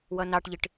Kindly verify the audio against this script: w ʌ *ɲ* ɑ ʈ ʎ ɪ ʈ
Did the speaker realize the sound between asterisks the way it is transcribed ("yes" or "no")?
no